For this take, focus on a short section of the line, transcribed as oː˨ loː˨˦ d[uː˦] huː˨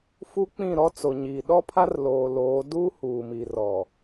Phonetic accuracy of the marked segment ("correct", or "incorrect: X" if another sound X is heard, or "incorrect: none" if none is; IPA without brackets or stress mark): correct